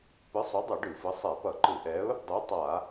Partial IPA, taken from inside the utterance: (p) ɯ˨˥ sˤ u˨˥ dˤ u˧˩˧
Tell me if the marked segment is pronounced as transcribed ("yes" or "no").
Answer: yes